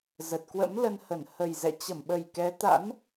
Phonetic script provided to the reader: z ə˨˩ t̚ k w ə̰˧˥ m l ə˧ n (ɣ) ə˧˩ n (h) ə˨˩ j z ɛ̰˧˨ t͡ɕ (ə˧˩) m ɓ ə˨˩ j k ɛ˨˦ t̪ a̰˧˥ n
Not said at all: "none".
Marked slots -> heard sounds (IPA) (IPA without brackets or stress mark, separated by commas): h, h, ə˧˩